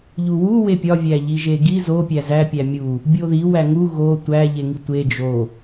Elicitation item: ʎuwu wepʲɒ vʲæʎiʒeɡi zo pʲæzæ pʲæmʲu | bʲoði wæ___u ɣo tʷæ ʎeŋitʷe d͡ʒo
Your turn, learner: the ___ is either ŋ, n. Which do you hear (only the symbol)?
ŋ